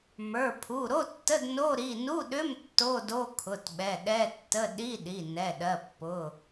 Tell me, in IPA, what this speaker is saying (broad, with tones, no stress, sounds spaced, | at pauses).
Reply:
m ə˞˩˧˩ pʰ u˩˧˩ ɾ o˧˥˧ tː ə˧˥˧ d n o˧˥˧ ɾ i˩˧˩ n u˧˥˧ ɗ ʏ˧˥˧ m tː o˧˥˧ d o˧˥˧ kʰ ʊ˩˧˩ t ɓ ɛ˩˧˩ ɗ ɛ˧˥˧ tː ə˧˥˧ ɗ i˧˥˧ ɗ i˩˧˩ n ɛ˩˧˩ ɗ ɜ˩˧˩ pː ʊ˩˧˩